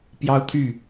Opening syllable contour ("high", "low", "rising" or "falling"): high